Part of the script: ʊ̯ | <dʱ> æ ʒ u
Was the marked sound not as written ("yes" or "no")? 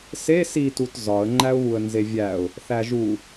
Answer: yes